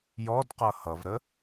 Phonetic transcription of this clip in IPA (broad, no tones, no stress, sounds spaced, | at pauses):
j ɔ d q ʌ h ʌ v ɾ ə